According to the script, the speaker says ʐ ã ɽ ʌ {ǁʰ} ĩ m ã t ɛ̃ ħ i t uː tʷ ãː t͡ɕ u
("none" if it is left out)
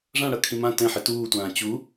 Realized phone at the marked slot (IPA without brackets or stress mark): kʰ